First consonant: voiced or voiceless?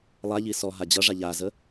voiced